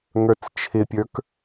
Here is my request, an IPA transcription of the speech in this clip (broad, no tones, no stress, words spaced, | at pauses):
ŋə˞t͡st͡ʃʰɪpʲə˞k